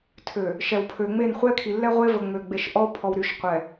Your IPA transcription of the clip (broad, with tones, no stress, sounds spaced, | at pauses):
tʰ ø˨ | ʃ ɛ˨ w pʰ ø˨ ŋ͡m e˦˨ n χʷ ɛ˦ kʰ i˨ lː ɛ˦ ʁʷ e˦ v ə˨ ŋ͡m ø˨ ɡ͡b e˨ ʃ ʔ ɔ˦ o̯ pʰ ɔ˨ w ɾ y˨ ʃ qʷ ɛ˨